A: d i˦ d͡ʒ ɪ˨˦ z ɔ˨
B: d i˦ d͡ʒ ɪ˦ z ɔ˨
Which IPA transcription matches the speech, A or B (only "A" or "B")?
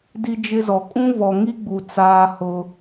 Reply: B